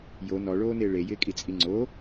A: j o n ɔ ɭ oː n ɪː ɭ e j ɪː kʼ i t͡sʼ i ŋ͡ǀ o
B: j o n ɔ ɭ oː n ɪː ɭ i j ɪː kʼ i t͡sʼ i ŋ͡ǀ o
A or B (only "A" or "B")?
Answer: A